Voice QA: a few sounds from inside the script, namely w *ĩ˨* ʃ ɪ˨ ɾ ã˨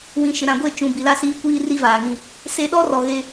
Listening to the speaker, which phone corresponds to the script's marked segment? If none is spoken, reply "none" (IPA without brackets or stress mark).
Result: ĩ˨